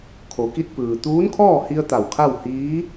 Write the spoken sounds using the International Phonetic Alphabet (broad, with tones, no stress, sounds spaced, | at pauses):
kʰ o˩˧ k i˧ t̚ p ɯː˩ t̪ uː˧˥ n kʰ ɔː˥˨ h i˧ ə̯ t̪ a˧˩ w kʰ a˥˨ w h iː˧˥